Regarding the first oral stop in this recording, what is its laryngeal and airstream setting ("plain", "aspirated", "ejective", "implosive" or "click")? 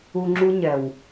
click